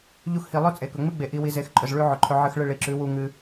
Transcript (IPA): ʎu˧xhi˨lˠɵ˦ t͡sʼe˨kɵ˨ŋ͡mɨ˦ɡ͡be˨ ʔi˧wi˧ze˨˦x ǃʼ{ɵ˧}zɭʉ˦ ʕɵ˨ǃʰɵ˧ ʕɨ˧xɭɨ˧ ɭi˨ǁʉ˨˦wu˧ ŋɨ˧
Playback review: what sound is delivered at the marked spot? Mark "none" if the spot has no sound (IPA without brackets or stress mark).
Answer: ɵ˨